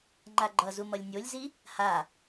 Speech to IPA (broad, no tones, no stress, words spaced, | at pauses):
ŋ͡ǃaɡ͡ǃʌzu mʌlʲnʲolʲzi | ha